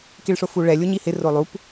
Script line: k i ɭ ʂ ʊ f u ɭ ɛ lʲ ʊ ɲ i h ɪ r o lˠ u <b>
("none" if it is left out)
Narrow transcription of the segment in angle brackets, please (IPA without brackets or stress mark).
p